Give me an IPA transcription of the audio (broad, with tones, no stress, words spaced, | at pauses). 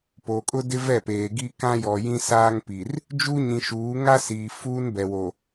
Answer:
po˨kʼʊ˦dɪ˦ vɛ˦˨peː˨ɡi˦ kã˦jɔ˨jĩ˦ saː˦ŋpi˨r | d͡ʒu˦ɲĩ˨ʃuː˨˦ ŋa˦siː˨ fuː˦nbɛ˨wo˨